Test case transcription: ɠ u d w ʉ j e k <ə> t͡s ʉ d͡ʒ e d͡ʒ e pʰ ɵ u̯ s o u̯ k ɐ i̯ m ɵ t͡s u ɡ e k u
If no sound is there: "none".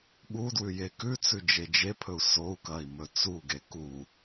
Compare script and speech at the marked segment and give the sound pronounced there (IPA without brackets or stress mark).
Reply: ʉ